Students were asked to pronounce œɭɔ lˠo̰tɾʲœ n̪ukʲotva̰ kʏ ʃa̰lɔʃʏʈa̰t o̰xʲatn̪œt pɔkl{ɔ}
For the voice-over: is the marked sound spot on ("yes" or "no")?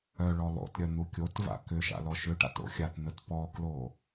no